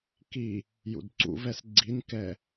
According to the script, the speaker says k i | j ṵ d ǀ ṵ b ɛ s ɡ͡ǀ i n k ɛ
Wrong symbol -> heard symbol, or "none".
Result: b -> v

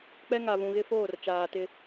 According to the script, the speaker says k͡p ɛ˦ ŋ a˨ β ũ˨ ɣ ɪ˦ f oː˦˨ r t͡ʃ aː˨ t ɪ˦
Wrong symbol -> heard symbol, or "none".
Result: none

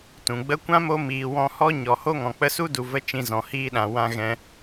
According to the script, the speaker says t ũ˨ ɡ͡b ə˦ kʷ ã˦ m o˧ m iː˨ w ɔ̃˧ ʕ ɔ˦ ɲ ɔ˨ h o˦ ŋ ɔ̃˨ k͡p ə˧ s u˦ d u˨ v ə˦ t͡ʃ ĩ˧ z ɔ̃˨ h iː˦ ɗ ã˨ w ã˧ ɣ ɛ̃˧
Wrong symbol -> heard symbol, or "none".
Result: ʕ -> h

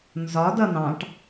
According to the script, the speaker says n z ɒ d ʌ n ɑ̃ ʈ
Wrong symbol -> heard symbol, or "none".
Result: none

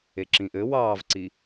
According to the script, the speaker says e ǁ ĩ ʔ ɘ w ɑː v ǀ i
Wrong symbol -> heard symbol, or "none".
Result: none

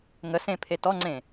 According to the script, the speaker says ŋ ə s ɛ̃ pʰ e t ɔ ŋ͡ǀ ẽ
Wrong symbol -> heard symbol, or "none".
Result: ɛ̃ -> ẽ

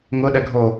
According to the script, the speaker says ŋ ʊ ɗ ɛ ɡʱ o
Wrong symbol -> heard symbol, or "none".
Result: none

